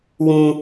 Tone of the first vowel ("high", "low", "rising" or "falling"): high